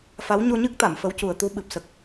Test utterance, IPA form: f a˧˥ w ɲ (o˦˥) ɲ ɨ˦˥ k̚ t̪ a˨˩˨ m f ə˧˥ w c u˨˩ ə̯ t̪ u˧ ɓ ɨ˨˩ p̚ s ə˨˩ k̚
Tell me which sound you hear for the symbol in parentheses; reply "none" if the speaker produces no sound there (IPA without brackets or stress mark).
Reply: o˧